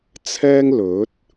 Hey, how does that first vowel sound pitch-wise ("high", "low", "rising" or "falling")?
high